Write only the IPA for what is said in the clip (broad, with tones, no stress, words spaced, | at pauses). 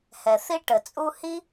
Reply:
hɛ˩θi˥ʈə˩t͡sʼu˥ hi˥